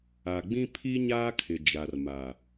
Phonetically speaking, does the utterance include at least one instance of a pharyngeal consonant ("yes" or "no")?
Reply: no